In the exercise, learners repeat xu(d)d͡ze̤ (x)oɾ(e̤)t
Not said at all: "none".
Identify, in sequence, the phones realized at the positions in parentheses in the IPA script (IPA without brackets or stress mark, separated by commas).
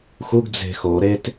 ɡ, x, e